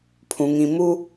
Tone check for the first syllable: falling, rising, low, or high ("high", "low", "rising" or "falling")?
low